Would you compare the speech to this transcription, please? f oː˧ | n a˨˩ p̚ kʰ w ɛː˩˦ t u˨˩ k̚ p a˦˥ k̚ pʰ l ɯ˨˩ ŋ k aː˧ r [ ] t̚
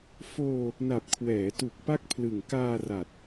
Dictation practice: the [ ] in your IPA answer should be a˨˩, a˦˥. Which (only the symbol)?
a˨˩